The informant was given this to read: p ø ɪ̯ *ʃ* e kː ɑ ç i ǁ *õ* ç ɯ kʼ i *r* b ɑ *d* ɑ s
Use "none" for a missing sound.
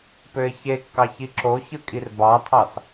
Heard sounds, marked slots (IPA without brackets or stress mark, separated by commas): ç, o, r, tʰ